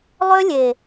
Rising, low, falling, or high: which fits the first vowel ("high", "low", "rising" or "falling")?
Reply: high